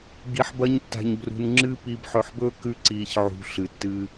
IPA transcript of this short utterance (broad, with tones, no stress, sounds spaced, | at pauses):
ɡ i˧ ħ b ɐ˦ ɲ tː a̤˧ ɲ b r ṳ˧ n ŋ͡ǁ ɨ˦ p i˧ b ħ ɵ˧ ħ b ɵː˦ k ʉ˦ ǀ iː˧ ç ʕ ṳ˧ ɬ ɨ˨ tː ɨː˧